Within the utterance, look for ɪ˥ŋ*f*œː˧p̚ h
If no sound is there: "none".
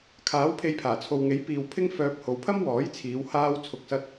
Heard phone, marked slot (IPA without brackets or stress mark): f